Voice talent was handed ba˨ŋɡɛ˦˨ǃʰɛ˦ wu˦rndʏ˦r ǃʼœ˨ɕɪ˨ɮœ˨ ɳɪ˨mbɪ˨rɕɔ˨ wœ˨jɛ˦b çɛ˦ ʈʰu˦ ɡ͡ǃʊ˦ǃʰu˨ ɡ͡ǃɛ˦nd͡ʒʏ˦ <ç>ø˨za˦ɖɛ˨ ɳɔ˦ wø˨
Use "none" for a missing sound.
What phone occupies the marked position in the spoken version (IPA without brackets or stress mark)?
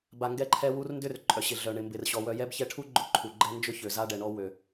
ç